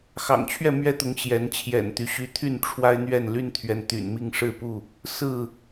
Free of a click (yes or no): yes